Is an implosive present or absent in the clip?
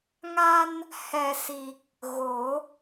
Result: absent